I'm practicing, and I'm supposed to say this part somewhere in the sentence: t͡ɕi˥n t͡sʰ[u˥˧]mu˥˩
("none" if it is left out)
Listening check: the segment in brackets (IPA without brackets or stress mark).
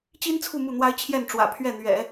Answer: u˥˧